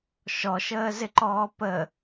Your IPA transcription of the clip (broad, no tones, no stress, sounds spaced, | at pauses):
ʃ ɔ ʃ əː z ɪ ǃ ɔː p ə